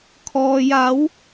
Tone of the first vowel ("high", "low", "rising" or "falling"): low